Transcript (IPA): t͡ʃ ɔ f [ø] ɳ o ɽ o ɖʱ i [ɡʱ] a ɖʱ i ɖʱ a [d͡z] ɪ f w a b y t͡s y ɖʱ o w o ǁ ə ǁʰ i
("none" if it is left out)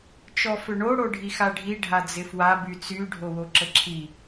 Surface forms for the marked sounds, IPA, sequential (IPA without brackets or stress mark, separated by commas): ø, x, d͡z